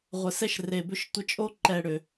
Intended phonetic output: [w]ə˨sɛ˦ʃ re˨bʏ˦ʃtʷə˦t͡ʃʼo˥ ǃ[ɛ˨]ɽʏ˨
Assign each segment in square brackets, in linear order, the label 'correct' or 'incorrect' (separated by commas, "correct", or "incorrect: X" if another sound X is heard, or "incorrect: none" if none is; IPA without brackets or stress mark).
incorrect: ʁʷ, incorrect: ɛ˦